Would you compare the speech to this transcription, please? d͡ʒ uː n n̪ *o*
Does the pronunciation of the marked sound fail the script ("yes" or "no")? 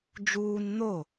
no